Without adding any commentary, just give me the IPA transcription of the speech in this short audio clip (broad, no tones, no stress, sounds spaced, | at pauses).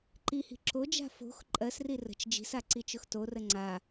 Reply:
ǃ i h i̤ ǁ o d͡ʒ a̤ f o̤ x ǃʼ ɜ s r i r ə̤ t͡ʃ d͡ʒ i̤ s a ǀ i t͡ʃ ʊ x t o r ə ŋ͡ǀ a